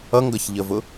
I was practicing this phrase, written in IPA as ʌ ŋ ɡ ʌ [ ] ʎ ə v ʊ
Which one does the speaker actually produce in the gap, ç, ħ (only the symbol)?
ç